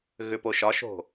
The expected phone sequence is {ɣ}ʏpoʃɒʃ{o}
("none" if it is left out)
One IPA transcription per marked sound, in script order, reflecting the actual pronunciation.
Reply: ɣ, o̤

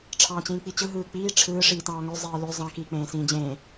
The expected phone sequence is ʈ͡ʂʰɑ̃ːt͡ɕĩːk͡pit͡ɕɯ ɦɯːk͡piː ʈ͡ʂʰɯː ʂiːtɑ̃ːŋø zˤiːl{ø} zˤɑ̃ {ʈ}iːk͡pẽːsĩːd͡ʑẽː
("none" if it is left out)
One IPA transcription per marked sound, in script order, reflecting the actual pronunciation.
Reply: ø, k

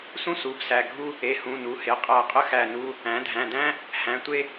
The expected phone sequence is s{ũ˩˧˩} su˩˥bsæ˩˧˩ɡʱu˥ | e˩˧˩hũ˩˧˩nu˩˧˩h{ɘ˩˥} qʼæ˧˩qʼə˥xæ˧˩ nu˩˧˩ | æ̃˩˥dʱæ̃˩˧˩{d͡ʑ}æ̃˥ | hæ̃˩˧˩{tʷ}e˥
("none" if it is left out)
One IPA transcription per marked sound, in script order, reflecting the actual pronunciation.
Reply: ũ˥, e˩˥, d, tʷ

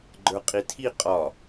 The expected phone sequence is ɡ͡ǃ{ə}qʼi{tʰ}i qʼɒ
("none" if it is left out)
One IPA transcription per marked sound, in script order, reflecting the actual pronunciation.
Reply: ə˞, tʰ

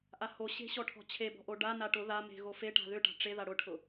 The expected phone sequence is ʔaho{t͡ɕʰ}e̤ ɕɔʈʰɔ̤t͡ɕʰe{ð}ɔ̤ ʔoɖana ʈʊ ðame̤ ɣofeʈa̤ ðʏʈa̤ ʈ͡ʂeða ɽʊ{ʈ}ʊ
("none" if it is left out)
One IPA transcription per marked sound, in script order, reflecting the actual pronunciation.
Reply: ɕ, b, ʈʰ

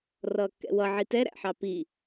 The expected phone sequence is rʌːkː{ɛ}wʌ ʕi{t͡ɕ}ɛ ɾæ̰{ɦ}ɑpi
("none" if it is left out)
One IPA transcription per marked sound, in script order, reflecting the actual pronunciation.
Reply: ɛ̰, t, ħ

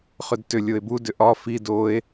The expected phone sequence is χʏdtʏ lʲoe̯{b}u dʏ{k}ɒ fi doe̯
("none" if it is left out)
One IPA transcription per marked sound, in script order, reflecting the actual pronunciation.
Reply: b, ʔ

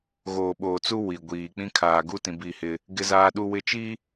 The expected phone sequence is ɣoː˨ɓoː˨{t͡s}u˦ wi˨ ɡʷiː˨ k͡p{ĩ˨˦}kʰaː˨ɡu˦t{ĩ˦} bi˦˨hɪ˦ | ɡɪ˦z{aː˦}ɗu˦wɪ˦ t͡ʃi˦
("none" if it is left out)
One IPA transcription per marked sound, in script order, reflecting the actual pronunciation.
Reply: t͡s, ĩ˦, ĩ˨, aː˦

